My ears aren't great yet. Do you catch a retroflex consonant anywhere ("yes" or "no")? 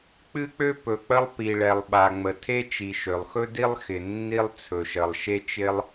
yes